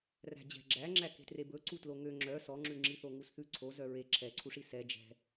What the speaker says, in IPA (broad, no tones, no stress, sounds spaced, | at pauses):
r æ̤ d͡ʑ ɛ̤ ɡ͡ǁ æ ŋ͡ǁ æ k e̤ t r e b ɵ ǀ u t l o ŋ ø ŋ͡ǁ œ s ɔ ŋ͡ǁ ʉ ŋ͡ǁ i θ o ŋ u s θ ʉ ǀʰ o z œ ɹ e ǁʰ ɛ ǀʰ u ʂ i s ɛ d͡ʒ ɛ̤